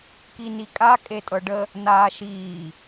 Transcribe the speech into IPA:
kinikʼa kʼetʼɤɖə | naːʃiː

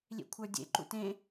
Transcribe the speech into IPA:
lʲḛkʷʰə˞dʲḛ ǃṵtẽ

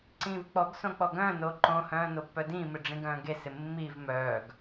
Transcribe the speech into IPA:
ǀĩːvk͡pɔɡsõ k͡pɔɡœ̃ːnoː ǃõhœ̃ː nopːœdĩːmɪ ɖ͡ʐĩɡœ̃ːɡesɪ mːiv mœːɡ

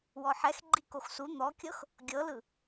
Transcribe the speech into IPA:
wɔħɛx ɡ͡ǃikoxsu n̪ɔkʲɤx | ɡʲɤlɯ

